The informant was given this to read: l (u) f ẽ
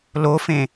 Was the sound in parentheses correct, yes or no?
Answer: no